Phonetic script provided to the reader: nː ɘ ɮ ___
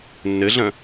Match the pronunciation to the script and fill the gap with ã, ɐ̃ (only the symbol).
ɐ̃